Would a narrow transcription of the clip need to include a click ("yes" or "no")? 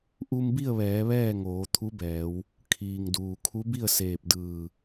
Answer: no